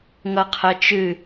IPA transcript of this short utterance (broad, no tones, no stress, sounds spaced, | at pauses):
ŋ ʌ qʰ ɜ t͡ʃ ɨ